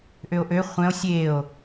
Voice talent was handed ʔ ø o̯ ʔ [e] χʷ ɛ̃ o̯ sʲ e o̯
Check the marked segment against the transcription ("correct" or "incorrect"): incorrect